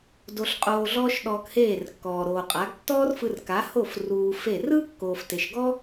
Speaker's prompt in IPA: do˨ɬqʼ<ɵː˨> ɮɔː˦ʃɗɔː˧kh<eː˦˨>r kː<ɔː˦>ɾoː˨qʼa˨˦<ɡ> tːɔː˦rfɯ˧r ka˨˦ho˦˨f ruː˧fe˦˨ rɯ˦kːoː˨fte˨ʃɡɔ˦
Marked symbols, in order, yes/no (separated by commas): no, yes, no, yes